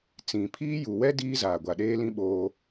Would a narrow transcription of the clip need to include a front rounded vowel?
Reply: no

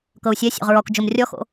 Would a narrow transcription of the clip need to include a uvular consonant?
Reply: yes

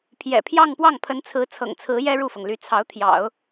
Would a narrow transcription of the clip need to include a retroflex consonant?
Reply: yes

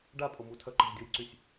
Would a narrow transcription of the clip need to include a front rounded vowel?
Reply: yes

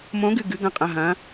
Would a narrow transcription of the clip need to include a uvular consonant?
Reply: yes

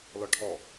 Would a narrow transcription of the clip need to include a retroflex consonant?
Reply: yes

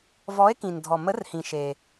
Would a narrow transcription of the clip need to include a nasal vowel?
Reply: yes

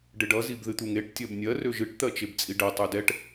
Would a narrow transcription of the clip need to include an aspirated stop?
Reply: no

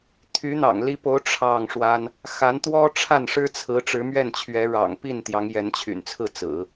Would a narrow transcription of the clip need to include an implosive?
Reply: no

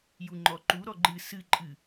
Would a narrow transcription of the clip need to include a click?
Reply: yes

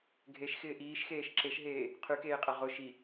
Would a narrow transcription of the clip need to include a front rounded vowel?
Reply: yes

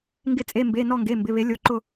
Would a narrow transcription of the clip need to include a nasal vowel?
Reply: no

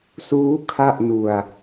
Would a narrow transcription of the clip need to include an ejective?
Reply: no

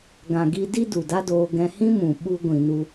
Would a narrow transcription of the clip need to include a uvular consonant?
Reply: no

